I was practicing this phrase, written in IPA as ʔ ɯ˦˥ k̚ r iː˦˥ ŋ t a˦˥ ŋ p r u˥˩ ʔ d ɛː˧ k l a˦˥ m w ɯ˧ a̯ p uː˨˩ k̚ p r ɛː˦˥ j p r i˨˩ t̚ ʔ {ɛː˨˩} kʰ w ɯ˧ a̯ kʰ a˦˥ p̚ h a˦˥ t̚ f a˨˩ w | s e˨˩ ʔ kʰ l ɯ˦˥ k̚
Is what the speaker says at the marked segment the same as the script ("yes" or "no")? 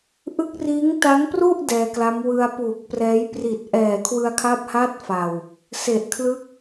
yes